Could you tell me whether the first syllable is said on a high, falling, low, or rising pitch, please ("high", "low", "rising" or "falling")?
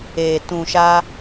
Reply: low